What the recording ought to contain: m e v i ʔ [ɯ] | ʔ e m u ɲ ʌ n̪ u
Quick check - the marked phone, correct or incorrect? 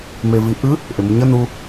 correct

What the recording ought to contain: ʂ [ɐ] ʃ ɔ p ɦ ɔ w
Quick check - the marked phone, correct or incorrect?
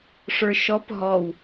incorrect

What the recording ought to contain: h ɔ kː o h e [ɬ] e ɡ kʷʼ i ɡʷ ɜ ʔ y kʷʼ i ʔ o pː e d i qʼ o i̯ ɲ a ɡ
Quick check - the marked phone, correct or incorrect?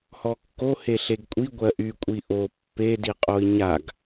correct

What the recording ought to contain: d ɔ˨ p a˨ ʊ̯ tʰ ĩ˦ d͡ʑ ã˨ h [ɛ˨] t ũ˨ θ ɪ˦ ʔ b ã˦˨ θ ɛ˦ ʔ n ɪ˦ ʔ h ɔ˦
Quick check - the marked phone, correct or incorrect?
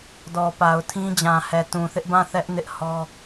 correct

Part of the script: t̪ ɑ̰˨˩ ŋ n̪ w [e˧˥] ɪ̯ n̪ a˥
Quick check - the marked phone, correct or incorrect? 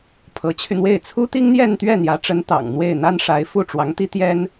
incorrect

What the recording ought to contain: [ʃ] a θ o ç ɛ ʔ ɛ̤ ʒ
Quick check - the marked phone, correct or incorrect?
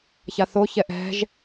incorrect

